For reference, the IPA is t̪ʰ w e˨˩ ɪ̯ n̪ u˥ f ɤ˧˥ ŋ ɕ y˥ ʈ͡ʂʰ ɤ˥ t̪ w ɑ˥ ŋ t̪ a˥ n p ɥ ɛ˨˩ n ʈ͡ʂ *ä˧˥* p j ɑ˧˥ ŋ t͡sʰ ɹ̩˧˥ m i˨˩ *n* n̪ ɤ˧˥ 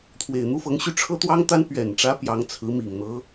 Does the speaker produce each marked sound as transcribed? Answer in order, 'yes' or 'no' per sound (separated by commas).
yes, no